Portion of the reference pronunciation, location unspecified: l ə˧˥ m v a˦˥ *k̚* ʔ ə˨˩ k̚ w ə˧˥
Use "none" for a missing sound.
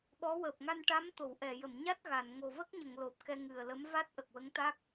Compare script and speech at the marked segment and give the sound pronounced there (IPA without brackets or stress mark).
t̚